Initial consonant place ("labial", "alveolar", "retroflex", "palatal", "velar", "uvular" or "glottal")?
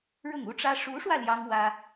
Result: retroflex